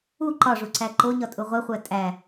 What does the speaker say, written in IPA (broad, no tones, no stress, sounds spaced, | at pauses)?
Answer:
u ǃ ɒ ʐ u ǀ æ ǃ o ɲ ɒ tʼ u ʁʷ e χʷ æ tʼ æ